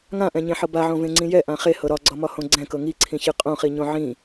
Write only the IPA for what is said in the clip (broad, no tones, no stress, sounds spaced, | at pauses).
ŋ ã ʔ ɛ̃ ɲ ẽ ħ ɤ b a ʕ õ v ẽ ŋ͡ǀ ĩ j ɛ ʔ ã χ e h ɤ ɾ ɒ ɡ͡ǀ ɒ m ɒ h õ ɡ͡ǀ ɛ̃ k ɤ ŋ i ǀʰ ĩ ç ɨ qʼ õ χ i ɲ õ ʕ ĩ